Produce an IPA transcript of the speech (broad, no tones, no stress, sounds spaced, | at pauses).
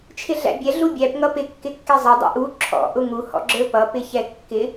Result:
t͡ʃʰ ɪ ɮ æ̰ bʲ ɛ ɮ u bʲ æ p ŋ ʌ p ɪ kː ɪ kː ɛ zˤ ɪ dˤ ḭ ʔ u ǁʰ ɔ̰ ʔ ʊ ŋ u h ɔ̰ ɡ͡ǁ ə˞ p ʌ p ɪ ç ɛ kː ɪ